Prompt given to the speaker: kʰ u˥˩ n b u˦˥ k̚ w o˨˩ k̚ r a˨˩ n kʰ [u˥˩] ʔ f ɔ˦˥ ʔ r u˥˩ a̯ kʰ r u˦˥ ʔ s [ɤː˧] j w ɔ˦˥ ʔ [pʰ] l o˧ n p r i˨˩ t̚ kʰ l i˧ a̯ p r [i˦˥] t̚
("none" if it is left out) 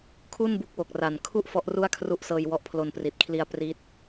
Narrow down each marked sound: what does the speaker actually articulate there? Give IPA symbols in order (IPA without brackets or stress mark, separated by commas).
u˥˩, ɤː˧, pʰ, i˦˥